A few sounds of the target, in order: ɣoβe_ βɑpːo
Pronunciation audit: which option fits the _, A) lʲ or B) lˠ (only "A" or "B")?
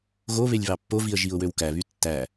A